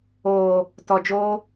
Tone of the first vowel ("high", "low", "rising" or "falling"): low